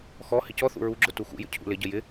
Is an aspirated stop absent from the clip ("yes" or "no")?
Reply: no